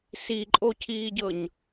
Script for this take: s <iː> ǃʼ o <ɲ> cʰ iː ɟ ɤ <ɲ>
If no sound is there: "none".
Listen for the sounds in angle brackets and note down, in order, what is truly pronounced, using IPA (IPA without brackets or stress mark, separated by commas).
i, none, ɲ